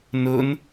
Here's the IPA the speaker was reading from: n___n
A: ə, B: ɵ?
B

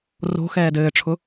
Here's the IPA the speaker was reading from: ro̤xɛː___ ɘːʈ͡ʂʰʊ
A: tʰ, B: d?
B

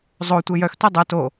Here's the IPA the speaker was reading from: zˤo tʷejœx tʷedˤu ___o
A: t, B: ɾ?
A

